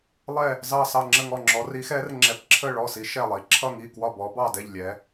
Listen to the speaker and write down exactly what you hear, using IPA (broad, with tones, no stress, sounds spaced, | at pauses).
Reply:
lˠ ɛ˥˧ | z ɑ˥˧ s ɑ˥˧ ŋ͡ǁ ə˥˧ ŋ ɔ˥˧ ŋ͡ǁ ɔ˧˥ r i˧˥ x ɛ˧˥ r ŋ͡ǁ ɛ˧˥ p ǁʰ ə˥˧ ɭ ɔ˥˧ s i˧˥ ʃ ɛ˥˧ lˠ i˧˥ ǁʰ ʌ˥˧ ŋ i˥˧ k w ɒ˥˧ b ɔ˧˥ b ɑ˥˧ d ɛ˥˧ ʎ lʲ ɛ˧˥